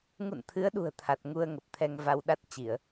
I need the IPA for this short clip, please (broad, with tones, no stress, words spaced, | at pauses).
ŋṵ˧˨nt̪ʰɨ˨˦ə̯ɗṳ˨˩ə̯ t̪ʰa˨˩t̚ŋu˧ə̯ŋə˨˩p̚ t̪ʰɛ˧ŋva˧w ɗa˦˥t̚ t͡ɕi˧˩˨ə̯